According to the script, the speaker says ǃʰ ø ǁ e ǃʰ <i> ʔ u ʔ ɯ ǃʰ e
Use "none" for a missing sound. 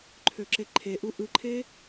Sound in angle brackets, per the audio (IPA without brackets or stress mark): e